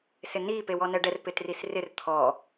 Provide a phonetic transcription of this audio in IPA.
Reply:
s ɪ n i p e w ɔ n ɛ ɖ ɛ r p ɪ t r i s r ɪ r t̪ʰ ɔ

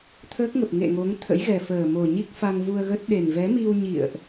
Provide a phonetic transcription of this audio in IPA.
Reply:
t̪ʰ əː˦˥ k̚ ŋ ə˨˩ p̚ ŋ ḛ˧˨ ŋ o˨˦ ŋ t̪ʰ ə̰˧˥ j ɣ ɛ˨˩ f əː˨˩ m o˨˩ ɲ i˦˥ k̚ f a˧ ŋ v u˧ ə̯ ɣ ə˦˥ t̚ ɗ e˨˩ n v ɛ˨˦ m i˧ w ɲ ḭ˧˨ ə̯ ʔ

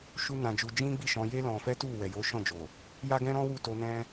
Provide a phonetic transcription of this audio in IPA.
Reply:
ʃ u˦ n ã˧ d͡ʒ u˧ d͡ʒ ĩ˦ ɡ͡b i˦˨ ʃ ɔ̃˧ j e˦ l ɔ̃˧ f ɛ˦ t u˦˨ w ɛ˨ j o˨˦ ʃ ɔ̃˦˨ d͡ʒ o˨ | j a˦ ɡ ɛ̃˦ ɾ ɔ̃˦ w u˦˨ t o˧ n ɛ̃˦

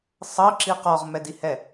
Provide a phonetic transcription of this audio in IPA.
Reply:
sˤ ɤ ǁ i q ɔ ʁ m ɛ d i h ɛ

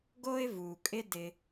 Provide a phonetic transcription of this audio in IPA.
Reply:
ɡ o˥ ɪ̯ v u˩ kʼ ɪ˦ d ɪ˨

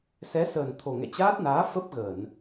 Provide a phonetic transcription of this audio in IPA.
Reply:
s ɛ˨˦ s əː˨˩ n t̪ʰ o˨˩ ŋ ɛ̰˧˨ t͡ɕ aː˦˥ t̚ n aː˨˦ f ə˦˥ p̚ ɣ ə˧˩˨ n

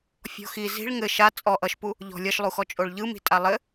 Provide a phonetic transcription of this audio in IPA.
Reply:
fʲ ɔ̤ x i z i̤ ɭ ŋ ɘ ʃ a t͡sʼ ɔ ʔ ʌ ʃ p u | ʎ ɔ̤ lʲ ʌ ʃ lˠ u x ɔ t͡ʃʼ o ɭ ʎ ɯ m i̤ tʼ a lˠ ɘ

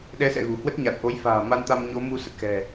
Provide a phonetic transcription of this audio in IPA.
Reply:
ɗ ɛ˨˦ s ɛ̰˧˨ ɣ ṳ˨˩ h w ə˦˥ t̚ ɲ a˨˩ t̚ ʔ o˨˦ j f a̤ː˨˩ m a˧ n t̪ a˧ m ɲ o˨˦ m u˧ s ə˨˩ t̚ x ɛ̤˨˩

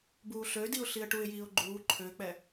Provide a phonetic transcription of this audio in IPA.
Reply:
b uː ɬ ø d i ʊ̯ ɬ i ə̯ ʈ u ɪ̯ j iː ʊ̯ ɡ͡ǃ uː ǃʰ ø k͡p ɛ

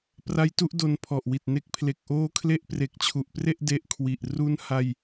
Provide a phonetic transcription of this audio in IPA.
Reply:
p r a˦˥ j t u˦˥ ʔ d o˧ n pʰ ɔ˨˩ ʔ w i˨˩ t̚ n e˦˥ k̚ pʰ l e˨˩ k̚ ʔ oː˦˥ kʰ l e˦˥ ʔ p r e˨˩ k̚ t͡ɕʰ u˨˩ ʔ p r e˥˩ ʔ d e˦˥ ʔ kʰ w i˨˩ ʔ r u˦˥ n h a˧ j

